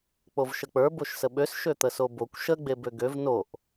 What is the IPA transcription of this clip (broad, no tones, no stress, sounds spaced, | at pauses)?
k͡p o v ʃ ə k͡p ə˞ b o ʃ s ə ɓ ø s ʃ ø t̪ ə s o b o kʷ ʃ ə ɡ͡b e b ø ɡ ø v n o ʔ